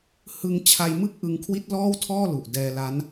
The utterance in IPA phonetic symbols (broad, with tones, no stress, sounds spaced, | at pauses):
h ɯ˧ ŋ t͡ɕʰ a˧ j m ɯ˥˩ k̚ ʔ ɯ˧ ŋ kʰ w i˦˥ t̚ l ɔː˥˩ w tʰ ɔː˥˩ l u˨˩ ʔ d ɛː˧ l a˦˥ n